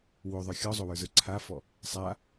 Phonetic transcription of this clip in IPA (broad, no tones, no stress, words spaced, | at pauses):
woðˤə˞ xʲɔzˤowə˞zə˞ ǀʰafɔ | sˤa